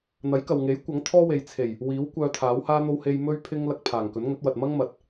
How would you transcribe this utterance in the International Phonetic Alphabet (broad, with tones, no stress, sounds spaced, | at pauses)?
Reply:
n̪ ɐ˨˥ j k ɐ˨ w ŋ e˨˥ j kʷ ɐ˨˥ ŋ t̪ʰ ɔː˥ w e˨ j t͡sʰ e˨˩ j | w iː˨˥ w kʷ œː˧ t̪ʰ aː˨˥ w h aː˥ n̪ o˥ w h e˧ j m ɵ˥ ɥ pʰ ɪ˥ ŋ l ɐ˧ k̚ pʰ aː˨˩ ŋ k ɵ˨˥ n ŋ ɵ˨˥ t̚ w ɐ˨ t̚ m ɐ˥ ŋ m ɐ˨ t̚